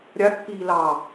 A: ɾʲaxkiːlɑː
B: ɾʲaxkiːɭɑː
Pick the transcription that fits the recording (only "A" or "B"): A